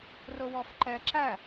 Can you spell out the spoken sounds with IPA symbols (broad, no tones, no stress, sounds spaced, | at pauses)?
r ʊ w ɔ f ǃ ɛ ǁ æ